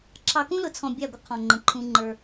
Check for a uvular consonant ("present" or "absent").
present